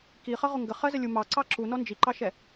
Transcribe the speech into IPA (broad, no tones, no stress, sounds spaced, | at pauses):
k i χ ʌ ʁ ʊ ŋ ɡ ə χ ɜ z ə lʲ u m ɑ ǀ ɑ ǁ u n ɔ n d͡ʒ i ǃ ɑ ʃ ɛ